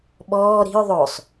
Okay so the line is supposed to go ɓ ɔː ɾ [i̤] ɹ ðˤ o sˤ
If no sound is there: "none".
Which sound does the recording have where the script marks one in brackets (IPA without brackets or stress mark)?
i̤